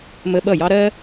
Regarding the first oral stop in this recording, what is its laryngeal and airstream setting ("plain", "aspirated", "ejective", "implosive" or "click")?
implosive